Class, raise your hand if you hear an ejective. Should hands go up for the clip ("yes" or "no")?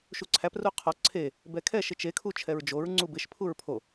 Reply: no